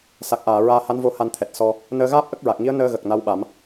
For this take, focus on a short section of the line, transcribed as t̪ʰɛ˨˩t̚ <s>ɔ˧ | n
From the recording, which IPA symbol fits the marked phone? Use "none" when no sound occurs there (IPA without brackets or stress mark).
s